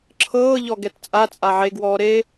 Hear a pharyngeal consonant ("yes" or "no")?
yes